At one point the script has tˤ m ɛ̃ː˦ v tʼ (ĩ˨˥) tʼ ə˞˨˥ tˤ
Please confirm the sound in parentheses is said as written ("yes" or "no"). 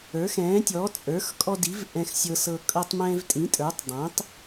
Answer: yes